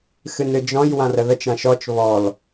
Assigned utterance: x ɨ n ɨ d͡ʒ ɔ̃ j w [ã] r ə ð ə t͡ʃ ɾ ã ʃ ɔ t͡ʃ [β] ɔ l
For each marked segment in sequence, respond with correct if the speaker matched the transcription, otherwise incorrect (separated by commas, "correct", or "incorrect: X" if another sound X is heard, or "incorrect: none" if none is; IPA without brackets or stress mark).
correct, correct